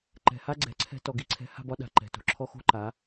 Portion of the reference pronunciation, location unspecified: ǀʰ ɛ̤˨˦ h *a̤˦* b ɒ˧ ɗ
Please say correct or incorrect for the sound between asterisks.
incorrect